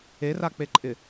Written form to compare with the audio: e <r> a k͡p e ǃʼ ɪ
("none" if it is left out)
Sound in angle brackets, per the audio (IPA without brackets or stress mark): r